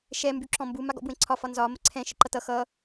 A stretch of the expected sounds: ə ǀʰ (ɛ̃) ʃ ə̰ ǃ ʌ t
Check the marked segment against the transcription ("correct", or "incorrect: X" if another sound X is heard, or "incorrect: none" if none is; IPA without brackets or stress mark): correct